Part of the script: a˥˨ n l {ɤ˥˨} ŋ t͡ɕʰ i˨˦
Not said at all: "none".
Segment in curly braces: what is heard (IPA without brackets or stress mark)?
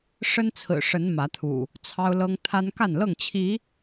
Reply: ɤ˥˨